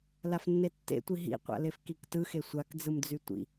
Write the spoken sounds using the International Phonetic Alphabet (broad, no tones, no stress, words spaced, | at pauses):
lafnːetːḛtʷi ɦḭqʷa̰ lefkiktɯxe sʷakd͡zɯmd͡zy tʷḭ